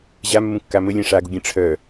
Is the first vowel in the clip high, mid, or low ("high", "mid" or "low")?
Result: low